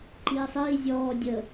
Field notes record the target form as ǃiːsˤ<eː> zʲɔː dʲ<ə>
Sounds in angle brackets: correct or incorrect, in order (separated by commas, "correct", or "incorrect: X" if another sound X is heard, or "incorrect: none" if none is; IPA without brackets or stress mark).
incorrect: iː, correct